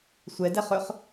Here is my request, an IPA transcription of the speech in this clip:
sʷ ɛ d ɛ χ ɵ χ

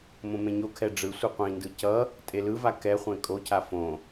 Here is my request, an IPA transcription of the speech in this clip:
m õ m ẽ ɲ o kʰ ɛ ɖ͡ʐ ɯ sʷ ɯ qʷ ĩ n d ɯ c ʌ | tʼ e l ɯ v a k ɛ χʷ ẽ kʼ o cʰ a f õ

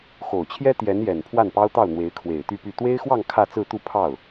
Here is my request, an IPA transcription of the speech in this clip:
x o˨˩ ʊ̯ t͡ɕʰ j ɛ˥ t̪ j ɛ˧˥ n j ɛ˨˩ n pʰ w a˥˩ n p ɑ˥ ʊ̯ t̪ ɑ˥˩ ʊ̯ n̪ w e˧˥ ɪ̯ kʰ w e˨˩ ɪ̯ t̪ y˥˧ p y˥˩ t̪ w e˥ ɪ̯ x w ɑ˥˧ ŋ kʰ ä˥˧ t͡s ɹ̩˥˧ t̪ u˥˧ pʰ ɑ˥˩ ʊ̯

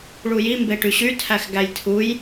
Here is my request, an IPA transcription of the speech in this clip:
ɭ u j i m b e ʈ y ɕ y tʰ æ x ɡ æ j tʰ u j

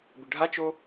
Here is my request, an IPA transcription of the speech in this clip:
b ɪ ɖʱ a t͡ʃ o

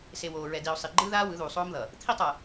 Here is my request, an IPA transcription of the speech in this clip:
s e˨ w oː˨ ɹ ɛ˨ d i˨ o̯ sˤ i˨ ɡ͡ǃ ɯː˦ ð aː˦ w ɯ˨˦ ð uː˨ sˤ oː˦ m ð ʌ˨ | t̪ʰ i˦ tˤ ʌ˨

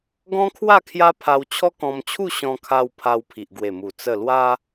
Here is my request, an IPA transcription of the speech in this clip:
ɡ ɔ̃˦ kʰ w a˥˧ kʰ j a˦ pʰ a˧ w t͡ɕʰ ɔ˦ k ɔ̃˧ m t͡ɕʰ u˥˧ ɕ ɔ̃˧ kʰ a˧ w pʰ a˧ w pʰ i˨ ʔ ɡ w e˨˩ m u˨˩ t͡s ə˥˧ l w a˦

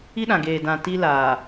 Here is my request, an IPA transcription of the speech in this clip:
i˦ ɗ ã˨ ɡ eː˨ d ã˨ t i˦ l aː˨

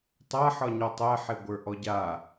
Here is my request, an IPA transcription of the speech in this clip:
tˤ a ħ ɒ ɲ ɔ tˤ ɛ ħ e ɡʷ ə˞ ʔ ɔ ɟ a

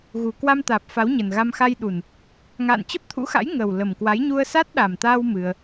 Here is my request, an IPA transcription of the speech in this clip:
ɣ u˨˩ k w a˧ m t̪ aː˨˩ p̚ f a˨˦ w ɲ ə˨˩ n ɣ a˧ m x a˧ j ɗ u˨˩ n | ŋ a̰ː˧˨ n t͡ɕ ə˦˥ p̚ t̪ʰ ṵ˧˥ x a̰˧˥ j ŋ ə˨˩ w l ə˨˩ m k w a˨˦ j ɲ u˧ ə̯ s a˦˥ t̚ ɗ a˨˩ m t̪ aː˧ w m ɨ˧ ə̯

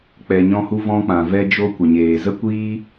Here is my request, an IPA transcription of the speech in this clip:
k͡p ɛ˧ ɲ ɔ̃˦ h u˦ v ɔ̃˧ k͡p ã˨ v ɛ˧ d͡ʒ o˧ kʷ ə˨ ɲ eː˨ z ə˦ kʷ iː˦

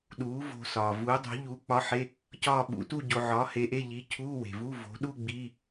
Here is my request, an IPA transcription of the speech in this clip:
ɗ uː˨˥ v o̤˧ s ɒː˩ v uː˨˥ dˤ o̤˨˥ ʎ u˨˥ k͡p ɒ˧˥˧ ħ e˧˥˧ | c ɒː˥˧ ɓ ṵ˨˥ t u˥˧ ɟ o˧ ʕ ɒː˨˥ h e˨˥ ʔ e˧˥˧ ʎ iː˨˥ cʰ uː˧˥˧ w e̤˩ v u˧˥˧ v o̤˨˥ ɗ uː˥˧ ɡ͡b i˧˥˧

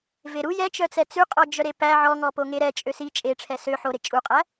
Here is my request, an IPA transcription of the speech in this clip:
v e ɾ u j ɛ t͡ʃ œ t͡s ɛ t͡s ʉ qʼ ɔ d͡ʒ œ ɾ e p æ ʕ ɔ ŋ ɔ p o ŋ e ɾ ɛ t͡ʃʼ ø s i t͡ʃʼ e ʈ͡ʂʰ ɛ s ø ħ o ɾ e t͡ʃʼ u qʼ æ

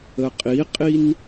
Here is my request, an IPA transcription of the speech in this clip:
ə qʼ i qʼ i n

